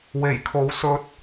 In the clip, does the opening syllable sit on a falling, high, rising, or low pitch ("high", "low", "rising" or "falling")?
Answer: low